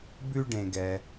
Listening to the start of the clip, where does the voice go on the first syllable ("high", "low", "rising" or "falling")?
high